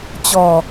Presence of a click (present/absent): absent